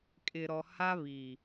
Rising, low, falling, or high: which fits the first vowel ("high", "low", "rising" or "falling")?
low